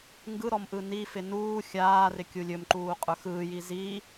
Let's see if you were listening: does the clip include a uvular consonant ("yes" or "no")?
yes